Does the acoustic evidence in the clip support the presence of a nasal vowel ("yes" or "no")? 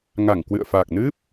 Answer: no